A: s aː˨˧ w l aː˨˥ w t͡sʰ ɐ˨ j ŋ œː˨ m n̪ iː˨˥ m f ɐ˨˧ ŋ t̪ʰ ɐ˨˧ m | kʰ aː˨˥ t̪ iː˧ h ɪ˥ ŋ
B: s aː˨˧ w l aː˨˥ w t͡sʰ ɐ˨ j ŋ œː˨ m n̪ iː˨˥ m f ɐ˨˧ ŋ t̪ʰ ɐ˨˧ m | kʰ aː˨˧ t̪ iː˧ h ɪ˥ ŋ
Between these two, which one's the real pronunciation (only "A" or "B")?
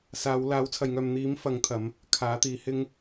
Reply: A